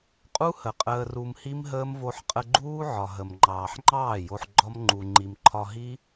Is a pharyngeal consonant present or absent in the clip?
present